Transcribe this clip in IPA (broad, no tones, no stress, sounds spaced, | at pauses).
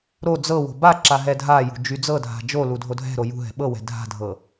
ɾ o d͡z ɤ w o̤ b a ǁ a ɦ ɛ dʱ a j ṳ d͡ʒ y d͡z ɤ dʱ a̤ d͡ʒ o l u dʱ o dʱ ɛ̤ ɾ o j ṳ ɦ ɛ̤ ɓ ɤ w ɛ̤ dʱ a̤ dʱ ɤ